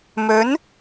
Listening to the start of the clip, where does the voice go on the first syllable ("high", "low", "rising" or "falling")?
rising